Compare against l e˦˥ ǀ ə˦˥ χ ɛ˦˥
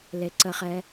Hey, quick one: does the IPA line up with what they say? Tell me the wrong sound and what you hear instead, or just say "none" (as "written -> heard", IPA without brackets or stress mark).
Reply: none